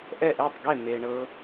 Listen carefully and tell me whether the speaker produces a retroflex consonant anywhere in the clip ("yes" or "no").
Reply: yes